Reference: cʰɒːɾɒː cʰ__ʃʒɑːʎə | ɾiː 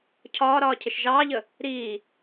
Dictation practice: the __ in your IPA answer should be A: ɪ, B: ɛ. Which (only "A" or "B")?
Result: A